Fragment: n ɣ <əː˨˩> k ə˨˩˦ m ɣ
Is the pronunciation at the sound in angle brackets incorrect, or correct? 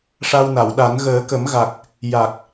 incorrect